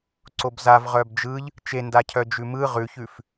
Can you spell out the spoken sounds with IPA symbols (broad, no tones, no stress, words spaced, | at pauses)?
ǀobzav ʁœbd͡ʒɯʎ | t͡ʃendacʰœ d͡ʒʉmɯ ʁʉçʉf